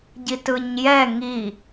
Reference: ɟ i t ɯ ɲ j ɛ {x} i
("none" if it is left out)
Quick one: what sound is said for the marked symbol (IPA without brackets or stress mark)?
ŋ